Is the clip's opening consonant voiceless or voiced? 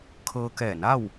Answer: voiceless